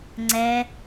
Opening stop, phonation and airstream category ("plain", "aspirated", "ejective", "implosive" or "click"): click